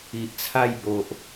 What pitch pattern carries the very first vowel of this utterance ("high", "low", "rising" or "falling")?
low